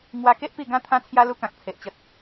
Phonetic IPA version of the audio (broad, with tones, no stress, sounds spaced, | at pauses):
ŋ w a˧ k e˦ ʔ p i˥˧ ɡ ã˦ t̪ʰ ã˦ t͡sʰ j a˦ l u˦ k ã˨ k̚ t͡sʰ e˨ ʔ t͡ɕ ə˨ t̚